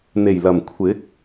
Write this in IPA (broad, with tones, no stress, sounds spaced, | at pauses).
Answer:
n̪ e˨˩ j l ɐ˨˩ m kʷʰ ɪ˨˥ k̚